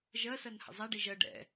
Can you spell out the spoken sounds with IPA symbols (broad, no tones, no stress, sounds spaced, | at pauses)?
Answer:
ʒ ɜ s ɜ n h ə̰ zˤ æ ɖ i ʒ ɜ ɖ ɛ̰